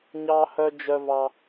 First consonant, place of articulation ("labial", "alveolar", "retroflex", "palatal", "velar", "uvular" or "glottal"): palatal